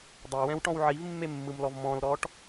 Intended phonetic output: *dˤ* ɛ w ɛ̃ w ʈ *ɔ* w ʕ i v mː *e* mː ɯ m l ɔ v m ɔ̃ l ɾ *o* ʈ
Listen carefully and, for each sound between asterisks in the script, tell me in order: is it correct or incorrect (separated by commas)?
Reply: correct, incorrect, correct, incorrect